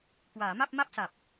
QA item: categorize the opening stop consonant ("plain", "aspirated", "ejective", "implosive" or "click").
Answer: plain